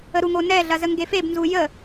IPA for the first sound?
ə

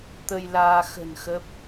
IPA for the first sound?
t̪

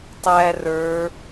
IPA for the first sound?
tˤ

